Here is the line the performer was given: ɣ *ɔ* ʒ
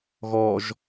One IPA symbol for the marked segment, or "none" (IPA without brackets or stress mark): ɔ